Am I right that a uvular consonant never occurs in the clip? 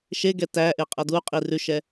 no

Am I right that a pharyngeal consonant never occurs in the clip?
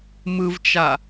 yes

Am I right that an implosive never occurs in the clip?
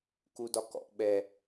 no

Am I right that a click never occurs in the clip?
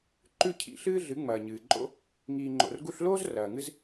no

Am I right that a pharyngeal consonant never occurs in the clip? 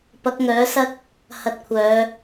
yes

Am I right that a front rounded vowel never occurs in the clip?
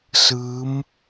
yes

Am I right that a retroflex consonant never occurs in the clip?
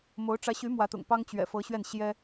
no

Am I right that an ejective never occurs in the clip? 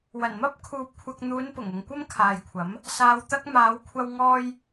yes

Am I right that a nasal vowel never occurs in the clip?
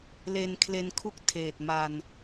yes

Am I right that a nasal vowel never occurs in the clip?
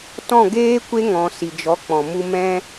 no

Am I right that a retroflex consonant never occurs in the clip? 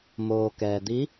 yes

